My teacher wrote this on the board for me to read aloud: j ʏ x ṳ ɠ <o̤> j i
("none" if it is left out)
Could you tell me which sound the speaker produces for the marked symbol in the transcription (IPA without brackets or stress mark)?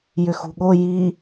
o